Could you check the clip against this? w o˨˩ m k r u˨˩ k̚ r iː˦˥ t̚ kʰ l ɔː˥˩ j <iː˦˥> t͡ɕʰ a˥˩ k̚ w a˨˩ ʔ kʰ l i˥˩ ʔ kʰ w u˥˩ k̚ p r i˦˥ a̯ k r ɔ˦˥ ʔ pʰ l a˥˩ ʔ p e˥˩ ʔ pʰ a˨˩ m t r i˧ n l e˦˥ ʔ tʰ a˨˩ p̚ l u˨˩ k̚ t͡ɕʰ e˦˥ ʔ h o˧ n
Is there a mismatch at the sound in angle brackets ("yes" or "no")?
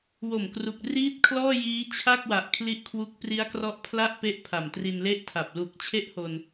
no